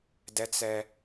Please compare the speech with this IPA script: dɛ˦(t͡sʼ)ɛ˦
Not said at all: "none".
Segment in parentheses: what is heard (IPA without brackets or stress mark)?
t͡s